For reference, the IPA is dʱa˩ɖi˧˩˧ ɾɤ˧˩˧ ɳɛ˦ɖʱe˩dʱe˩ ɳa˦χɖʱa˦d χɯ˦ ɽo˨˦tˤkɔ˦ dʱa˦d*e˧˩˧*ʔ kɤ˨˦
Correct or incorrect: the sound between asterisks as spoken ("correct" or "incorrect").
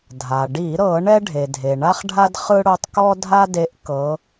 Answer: incorrect